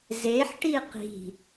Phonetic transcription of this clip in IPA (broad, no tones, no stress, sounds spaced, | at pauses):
z e ħ ʈ i q i̤